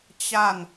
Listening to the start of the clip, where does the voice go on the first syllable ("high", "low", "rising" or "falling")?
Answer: falling